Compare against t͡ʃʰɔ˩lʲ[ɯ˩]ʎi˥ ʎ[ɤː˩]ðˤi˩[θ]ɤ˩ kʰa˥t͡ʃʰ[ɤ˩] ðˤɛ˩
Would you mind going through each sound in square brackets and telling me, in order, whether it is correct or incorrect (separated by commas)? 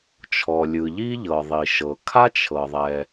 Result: correct, incorrect, incorrect, correct